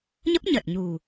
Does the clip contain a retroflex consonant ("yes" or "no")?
no